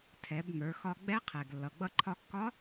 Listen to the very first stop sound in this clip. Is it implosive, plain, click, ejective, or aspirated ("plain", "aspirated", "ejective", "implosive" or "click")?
aspirated